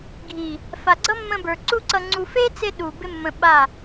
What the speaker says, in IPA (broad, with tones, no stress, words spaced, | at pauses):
ɡʱi˨ | fa˨ɡ͡ǀʌ˦ mːə̃˧bə˞˨ ǀu˦ǀʌ˧ŋ͡ǀu˧ fe˦t͡se˧ ɗu˨ bɪ˦mːə̃˧ɓa˦˨